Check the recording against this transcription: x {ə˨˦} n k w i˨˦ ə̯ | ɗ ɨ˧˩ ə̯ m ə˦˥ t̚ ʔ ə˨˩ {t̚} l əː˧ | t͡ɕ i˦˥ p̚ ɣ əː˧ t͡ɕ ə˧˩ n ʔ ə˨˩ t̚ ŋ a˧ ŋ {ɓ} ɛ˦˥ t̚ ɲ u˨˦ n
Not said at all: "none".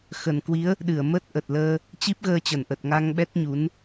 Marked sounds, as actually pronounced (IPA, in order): ə˨˩, t̚, ɓ

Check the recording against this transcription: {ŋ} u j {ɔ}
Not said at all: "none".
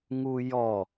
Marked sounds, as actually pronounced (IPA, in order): ŋ, ɔ

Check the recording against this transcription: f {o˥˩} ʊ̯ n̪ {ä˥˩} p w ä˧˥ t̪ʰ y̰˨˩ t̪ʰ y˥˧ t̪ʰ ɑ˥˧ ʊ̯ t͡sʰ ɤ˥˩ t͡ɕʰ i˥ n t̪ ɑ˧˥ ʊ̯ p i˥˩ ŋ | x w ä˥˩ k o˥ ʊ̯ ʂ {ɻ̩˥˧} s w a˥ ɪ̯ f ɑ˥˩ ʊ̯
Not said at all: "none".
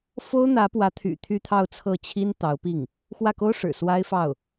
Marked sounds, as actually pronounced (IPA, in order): o˥, ä˧˥, ɻ̩˨˩

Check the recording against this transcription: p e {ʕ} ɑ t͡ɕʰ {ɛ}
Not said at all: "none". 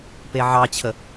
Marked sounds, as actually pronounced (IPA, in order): ʕ, ə

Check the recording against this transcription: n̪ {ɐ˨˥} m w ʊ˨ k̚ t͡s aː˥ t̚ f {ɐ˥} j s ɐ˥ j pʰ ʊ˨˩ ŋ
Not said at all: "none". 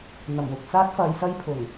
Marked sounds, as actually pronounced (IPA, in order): ɐ˨˩, ɐ˨˧

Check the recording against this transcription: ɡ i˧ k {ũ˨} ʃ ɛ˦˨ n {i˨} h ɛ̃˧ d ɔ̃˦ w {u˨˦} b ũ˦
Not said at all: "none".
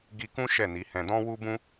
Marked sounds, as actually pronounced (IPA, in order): ũ˦, i˨˦, u˦

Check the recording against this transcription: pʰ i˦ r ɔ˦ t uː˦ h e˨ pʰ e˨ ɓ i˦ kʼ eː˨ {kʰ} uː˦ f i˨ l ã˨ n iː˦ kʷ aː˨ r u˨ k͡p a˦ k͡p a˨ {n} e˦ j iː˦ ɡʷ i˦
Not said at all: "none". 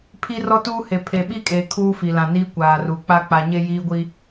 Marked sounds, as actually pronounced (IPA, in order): kʰ, ɲ

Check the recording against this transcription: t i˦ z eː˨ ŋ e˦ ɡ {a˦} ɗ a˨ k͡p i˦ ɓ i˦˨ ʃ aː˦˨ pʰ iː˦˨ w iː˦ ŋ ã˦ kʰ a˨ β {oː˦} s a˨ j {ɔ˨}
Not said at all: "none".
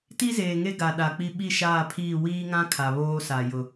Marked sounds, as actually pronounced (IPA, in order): a˨, oː˦, ʊ˨

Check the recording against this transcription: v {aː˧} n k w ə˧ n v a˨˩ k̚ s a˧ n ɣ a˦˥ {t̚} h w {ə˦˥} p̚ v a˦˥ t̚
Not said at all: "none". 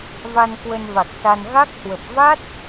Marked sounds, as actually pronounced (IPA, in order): a˧, k̚, ə˨˩

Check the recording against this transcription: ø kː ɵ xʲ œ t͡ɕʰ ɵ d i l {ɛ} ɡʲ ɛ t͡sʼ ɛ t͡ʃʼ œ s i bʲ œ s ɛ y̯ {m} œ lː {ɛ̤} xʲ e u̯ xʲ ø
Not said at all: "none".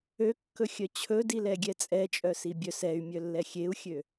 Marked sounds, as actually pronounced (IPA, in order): ɛ, mʲ, ɛ

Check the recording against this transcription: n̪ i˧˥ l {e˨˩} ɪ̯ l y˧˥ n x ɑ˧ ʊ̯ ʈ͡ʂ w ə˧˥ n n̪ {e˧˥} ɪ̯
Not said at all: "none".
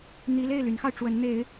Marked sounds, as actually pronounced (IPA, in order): e˥˩, e˧˥

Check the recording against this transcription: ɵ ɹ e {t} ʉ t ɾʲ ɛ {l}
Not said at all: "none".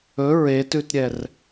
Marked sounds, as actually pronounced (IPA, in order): t, r

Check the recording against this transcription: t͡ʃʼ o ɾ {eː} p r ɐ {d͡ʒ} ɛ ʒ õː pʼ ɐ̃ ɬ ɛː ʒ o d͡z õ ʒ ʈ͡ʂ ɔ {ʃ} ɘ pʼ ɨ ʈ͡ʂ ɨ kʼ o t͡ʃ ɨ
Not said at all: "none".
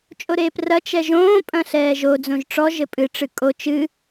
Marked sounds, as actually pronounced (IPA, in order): eː, t͡ʃ, ʒ

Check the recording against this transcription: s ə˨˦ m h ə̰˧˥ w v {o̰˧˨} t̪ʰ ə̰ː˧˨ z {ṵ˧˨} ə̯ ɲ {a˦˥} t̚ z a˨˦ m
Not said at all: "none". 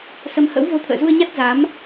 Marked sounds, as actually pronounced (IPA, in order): o˧, u˧, a˦˥

